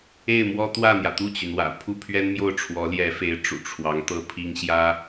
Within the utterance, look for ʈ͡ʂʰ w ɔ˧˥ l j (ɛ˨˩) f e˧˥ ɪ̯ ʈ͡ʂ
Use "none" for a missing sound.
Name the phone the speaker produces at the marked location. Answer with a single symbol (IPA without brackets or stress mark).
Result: ɛ˧˥